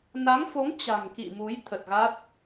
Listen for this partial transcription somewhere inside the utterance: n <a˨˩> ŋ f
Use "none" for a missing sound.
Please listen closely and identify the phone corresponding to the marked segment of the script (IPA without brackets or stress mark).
a˨˦